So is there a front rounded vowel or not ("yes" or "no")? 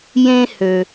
yes